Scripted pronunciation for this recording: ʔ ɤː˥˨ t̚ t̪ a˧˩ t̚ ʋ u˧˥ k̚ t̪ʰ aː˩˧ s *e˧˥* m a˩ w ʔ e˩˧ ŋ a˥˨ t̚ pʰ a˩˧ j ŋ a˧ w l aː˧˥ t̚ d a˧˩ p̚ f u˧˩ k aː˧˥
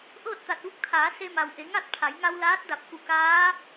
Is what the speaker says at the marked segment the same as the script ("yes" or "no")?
no